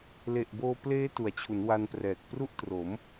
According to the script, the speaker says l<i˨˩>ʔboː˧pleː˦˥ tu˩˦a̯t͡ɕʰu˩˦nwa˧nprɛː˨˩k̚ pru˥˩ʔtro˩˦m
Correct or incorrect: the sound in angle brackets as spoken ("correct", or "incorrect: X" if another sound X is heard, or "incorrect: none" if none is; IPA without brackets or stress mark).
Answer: incorrect: e˨˩